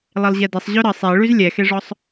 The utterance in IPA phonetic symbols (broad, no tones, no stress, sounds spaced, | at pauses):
lˠ e lˠ ʑ ɛ d e sˤ ʑ ø ɾ ə sˤ e ɭ y z lʲ ɛ x e ʐ ɔ sˤ